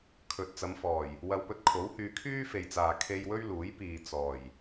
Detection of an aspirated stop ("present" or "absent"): present